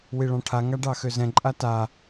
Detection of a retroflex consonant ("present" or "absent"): present